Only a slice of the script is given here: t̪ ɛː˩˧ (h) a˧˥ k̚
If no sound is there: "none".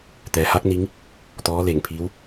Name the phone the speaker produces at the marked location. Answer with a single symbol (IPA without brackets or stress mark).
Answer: h